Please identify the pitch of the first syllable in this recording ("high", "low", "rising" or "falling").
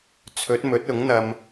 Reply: rising